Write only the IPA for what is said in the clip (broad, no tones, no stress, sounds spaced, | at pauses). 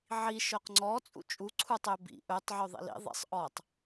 ʕ i ʃ œ q ŋ͡ǀ ɔ t͡sʼ ṵ t͡ʃʼ u ǀʰ u tˤ ø b ḭ ʔ ɵ tˤ ʕ ø ðˤ ḭ l ḭ ðˤ ḭ sˤ ʔ ɔ tˤ